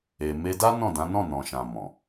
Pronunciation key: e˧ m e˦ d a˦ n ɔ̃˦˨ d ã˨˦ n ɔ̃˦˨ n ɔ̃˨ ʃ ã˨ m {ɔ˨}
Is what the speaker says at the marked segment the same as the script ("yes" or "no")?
no